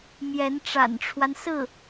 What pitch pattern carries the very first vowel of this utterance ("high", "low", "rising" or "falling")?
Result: rising